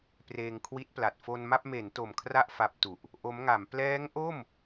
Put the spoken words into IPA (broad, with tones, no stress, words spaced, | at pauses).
preː˧ŋkʰwi˦˥t̚pla˨˩t̚ fo˧nma˥˩p̚ me˩˦n to˨˩mkʰra˥˩ʔ fa˦˥p̚tu˨˩ʔ | ʔo˦˥mŋa˩˦m plɛː˦˥ŋʔo˥˩m